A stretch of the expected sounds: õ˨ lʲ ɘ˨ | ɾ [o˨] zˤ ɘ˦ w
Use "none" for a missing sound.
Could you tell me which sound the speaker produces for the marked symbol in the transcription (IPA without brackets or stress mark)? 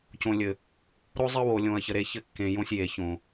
o˦